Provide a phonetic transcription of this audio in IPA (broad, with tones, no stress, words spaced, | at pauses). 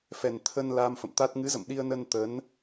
fɛ˨˩nt̪ʰə˧nla˧m fə̰˧˨mt̪a˦˥t̚ ŋɨ˨˦zə̰˧˨m ɗi˧ə̯nə˧n t̪ə˨˦n